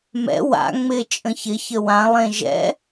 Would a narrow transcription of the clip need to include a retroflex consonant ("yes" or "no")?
no